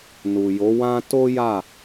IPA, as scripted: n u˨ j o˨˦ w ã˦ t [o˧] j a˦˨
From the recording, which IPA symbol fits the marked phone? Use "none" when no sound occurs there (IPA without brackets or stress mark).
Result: o˦